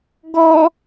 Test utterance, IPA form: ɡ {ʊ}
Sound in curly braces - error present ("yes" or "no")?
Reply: yes